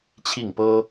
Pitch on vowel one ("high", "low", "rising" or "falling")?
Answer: falling